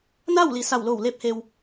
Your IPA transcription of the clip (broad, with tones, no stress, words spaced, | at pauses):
na˥˨wli˩ sa˧˩wlo˧˩wle˧p̚he˩w